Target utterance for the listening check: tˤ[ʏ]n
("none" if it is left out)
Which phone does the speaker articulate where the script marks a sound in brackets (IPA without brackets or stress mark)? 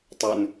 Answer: ʏ